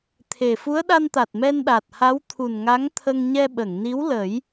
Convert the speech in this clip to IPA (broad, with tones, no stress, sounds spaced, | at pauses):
t̪ʰ e˨˩ f u˧˥ ə̯ ɗ a˧ n t̪ a˨˩ t̚ m ɛ˧ n ɗ a˨˩ t̚ h a˧˥ w t̪ʰ u˨˩ n ŋ a˧˥ ŋ t̪ʰ ə˧ ŋ ɲ ɛ˧ ɓ ə˨˩˨ ŋ n i˧˥ w l ə˨˩˦ j